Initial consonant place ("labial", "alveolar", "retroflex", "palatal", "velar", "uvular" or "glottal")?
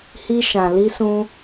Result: glottal